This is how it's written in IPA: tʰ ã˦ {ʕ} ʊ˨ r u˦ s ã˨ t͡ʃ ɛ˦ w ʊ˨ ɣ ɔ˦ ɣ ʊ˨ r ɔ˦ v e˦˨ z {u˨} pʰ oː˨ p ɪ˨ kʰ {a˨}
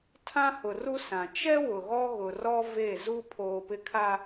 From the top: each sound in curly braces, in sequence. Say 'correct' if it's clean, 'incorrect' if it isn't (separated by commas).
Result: incorrect, incorrect, correct